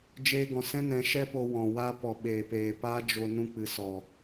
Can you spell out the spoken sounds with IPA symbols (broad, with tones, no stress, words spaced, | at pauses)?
d͡ʒeː˧ɡɔ̃˨sɛ̃˦nɛ̃˨˦ ʃɛ˦po˧wɔ̃˨ wa˧ pɔ˨ɓeː˨peː˨ paː˦d͡ʒo˧ nũ˧k͡pɨ˨sɔ˨